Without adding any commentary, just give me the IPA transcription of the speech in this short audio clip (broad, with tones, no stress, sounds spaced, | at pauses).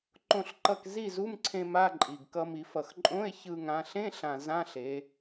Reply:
ǃ õ˥˨ ɬ ǃ ʌ˥˨ k z i˥˨ z u˧˥˧ m ǀʰ ẽ˧ m a˧˥˧ ǃʼ i˨˩ ɡ k ʌ˧ m i˩˧ f ʌ˨˩ x ǃʼ õ˧˥˧ e̯ ç ɯ˧ ŋ ã˩˧ ɬ ẽ˧˥˧ ɬ ã˨˩ z ã˧˥˧ ɬ e˩˧